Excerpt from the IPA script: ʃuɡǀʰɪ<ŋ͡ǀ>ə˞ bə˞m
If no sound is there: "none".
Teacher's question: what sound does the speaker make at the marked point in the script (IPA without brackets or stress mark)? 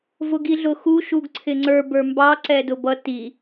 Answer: ŋ͡ǀ